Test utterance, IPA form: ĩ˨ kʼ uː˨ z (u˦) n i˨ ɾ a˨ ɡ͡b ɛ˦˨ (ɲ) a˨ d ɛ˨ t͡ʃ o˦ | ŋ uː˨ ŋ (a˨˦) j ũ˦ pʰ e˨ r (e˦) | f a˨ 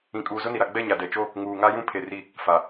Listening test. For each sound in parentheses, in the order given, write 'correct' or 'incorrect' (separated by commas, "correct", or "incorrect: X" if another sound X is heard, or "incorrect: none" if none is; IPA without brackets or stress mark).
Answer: incorrect: ʊ˦, correct, incorrect: a˦, incorrect: i˦